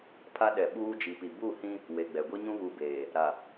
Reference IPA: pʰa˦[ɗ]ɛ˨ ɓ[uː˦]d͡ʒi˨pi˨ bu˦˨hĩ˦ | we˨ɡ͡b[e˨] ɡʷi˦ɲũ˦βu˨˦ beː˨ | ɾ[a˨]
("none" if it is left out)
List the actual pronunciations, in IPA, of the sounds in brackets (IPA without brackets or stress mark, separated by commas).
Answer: ɗ, uː˦, ɛ˨, a˨